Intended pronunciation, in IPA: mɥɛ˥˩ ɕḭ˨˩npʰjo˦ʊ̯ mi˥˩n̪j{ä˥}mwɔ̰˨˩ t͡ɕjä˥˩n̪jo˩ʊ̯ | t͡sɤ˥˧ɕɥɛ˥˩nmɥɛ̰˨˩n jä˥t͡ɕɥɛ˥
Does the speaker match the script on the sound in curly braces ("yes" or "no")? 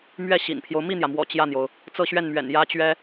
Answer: no